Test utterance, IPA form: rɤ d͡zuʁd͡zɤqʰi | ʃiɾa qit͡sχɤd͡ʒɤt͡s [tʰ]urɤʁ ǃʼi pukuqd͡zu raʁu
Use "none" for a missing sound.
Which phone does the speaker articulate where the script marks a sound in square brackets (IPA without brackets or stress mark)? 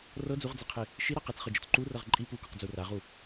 ǃ